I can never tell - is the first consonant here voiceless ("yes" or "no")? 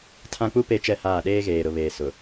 yes